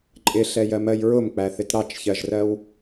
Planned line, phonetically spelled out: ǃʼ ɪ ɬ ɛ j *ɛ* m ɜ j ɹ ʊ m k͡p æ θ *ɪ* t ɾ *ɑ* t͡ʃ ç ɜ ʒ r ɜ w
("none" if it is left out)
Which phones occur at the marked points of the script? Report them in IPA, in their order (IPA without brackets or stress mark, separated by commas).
ɜ, ɪ, ɑ